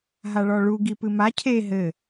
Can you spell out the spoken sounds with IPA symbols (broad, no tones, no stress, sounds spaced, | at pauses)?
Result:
ɦ a ɭ ɔ ɭ u ɡ i p ɨ m a cʰ e ɦ ɘ